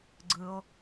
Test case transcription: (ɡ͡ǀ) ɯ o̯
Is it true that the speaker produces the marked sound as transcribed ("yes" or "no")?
yes